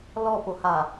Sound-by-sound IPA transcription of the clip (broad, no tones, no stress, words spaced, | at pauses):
lɔpoha